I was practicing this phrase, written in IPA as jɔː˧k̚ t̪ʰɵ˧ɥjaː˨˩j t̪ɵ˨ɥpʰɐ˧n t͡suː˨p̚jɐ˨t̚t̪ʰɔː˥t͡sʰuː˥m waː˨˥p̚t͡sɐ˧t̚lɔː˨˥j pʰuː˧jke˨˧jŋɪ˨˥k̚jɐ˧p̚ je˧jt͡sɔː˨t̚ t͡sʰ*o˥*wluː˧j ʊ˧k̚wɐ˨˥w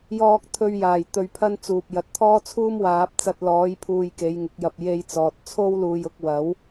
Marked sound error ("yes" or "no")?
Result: no